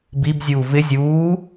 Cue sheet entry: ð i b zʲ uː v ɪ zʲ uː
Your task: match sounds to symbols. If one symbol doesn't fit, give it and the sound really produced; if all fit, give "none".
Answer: ð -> b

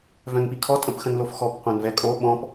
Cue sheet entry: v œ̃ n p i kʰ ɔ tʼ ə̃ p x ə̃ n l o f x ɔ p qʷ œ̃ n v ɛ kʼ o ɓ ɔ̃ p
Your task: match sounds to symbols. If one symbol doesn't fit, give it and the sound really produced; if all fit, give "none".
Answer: none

